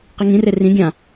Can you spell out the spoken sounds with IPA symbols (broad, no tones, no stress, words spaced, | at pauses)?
qiŋĩre rĩ ɡʲã